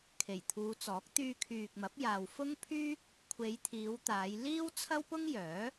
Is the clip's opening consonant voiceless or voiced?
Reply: voiceless